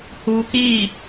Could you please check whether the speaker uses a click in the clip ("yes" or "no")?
no